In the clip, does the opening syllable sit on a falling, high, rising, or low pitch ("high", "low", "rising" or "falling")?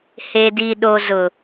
low